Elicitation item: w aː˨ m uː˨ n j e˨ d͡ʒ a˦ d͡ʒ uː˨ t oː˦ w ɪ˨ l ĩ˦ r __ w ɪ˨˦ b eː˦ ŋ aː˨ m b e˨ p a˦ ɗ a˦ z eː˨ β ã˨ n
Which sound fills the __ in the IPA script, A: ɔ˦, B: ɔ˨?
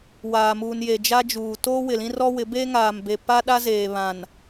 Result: A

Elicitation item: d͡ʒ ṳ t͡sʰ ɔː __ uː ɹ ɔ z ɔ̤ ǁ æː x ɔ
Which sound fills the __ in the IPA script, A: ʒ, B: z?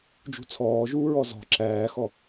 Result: A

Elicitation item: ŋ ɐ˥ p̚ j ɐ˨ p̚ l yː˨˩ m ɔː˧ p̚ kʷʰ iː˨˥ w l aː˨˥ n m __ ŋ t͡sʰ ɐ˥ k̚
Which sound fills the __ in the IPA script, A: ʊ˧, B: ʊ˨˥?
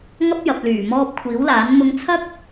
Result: A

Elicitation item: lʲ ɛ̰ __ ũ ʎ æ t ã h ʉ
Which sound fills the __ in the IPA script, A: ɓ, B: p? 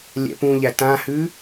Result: B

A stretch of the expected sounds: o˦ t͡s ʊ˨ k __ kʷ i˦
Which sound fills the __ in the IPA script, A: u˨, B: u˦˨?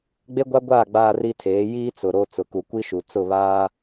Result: A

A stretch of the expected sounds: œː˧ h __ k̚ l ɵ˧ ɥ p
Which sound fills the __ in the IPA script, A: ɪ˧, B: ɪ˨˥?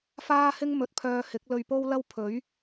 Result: B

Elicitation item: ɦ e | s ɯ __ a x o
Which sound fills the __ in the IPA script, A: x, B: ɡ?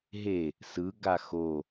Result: B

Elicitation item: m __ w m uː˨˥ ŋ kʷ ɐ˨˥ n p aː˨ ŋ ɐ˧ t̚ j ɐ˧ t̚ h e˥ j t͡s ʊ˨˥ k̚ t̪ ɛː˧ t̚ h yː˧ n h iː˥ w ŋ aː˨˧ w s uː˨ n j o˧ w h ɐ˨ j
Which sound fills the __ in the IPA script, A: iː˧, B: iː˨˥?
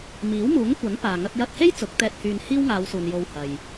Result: B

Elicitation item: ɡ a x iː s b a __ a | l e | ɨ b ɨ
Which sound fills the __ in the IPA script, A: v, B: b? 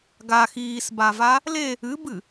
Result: A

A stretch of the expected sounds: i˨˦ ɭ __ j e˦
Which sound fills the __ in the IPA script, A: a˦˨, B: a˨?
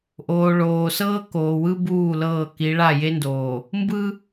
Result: A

